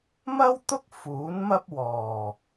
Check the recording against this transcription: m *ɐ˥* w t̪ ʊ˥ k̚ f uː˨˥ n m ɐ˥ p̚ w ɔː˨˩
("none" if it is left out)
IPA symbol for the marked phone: ɐ˥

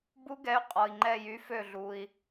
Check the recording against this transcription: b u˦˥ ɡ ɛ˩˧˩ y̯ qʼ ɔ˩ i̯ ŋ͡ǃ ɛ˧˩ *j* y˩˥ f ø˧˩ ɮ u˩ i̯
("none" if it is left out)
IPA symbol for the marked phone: j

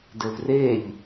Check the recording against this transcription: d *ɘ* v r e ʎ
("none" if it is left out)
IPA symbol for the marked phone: ɘ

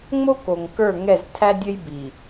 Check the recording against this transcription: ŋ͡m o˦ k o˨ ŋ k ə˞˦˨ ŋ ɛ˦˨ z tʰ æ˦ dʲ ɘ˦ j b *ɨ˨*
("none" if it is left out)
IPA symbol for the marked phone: i˨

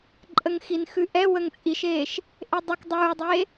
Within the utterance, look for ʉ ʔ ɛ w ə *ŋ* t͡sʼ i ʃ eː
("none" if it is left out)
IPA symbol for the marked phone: ŋ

